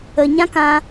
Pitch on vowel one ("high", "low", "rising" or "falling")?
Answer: low